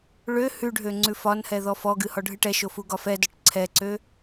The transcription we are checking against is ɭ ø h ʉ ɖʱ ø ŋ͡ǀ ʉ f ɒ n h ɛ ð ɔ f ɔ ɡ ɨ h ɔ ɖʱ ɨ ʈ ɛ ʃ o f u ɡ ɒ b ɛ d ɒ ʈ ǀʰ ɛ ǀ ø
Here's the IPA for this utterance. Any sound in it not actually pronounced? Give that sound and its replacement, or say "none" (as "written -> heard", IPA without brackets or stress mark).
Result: b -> f